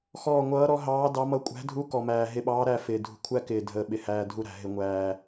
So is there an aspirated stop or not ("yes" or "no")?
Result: yes